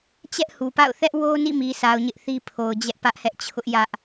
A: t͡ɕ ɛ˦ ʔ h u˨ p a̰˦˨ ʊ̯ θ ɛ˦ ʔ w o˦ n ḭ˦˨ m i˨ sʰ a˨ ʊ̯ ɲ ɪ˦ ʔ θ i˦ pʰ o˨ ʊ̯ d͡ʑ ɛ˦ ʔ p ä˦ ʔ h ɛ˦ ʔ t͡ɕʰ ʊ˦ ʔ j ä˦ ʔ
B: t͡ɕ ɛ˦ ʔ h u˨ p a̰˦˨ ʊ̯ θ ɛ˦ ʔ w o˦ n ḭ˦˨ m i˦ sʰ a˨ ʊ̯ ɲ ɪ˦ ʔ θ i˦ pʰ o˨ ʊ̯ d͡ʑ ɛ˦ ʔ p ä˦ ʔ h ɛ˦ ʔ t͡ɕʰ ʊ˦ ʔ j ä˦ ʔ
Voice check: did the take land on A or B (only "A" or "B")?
A